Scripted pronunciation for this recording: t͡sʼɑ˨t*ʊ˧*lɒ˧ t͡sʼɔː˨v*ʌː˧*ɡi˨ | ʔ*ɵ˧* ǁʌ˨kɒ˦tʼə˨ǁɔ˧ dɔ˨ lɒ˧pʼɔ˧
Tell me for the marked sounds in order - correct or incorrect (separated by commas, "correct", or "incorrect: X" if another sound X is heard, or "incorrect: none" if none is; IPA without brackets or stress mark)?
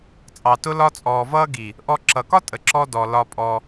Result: correct, correct, incorrect: ɔ˧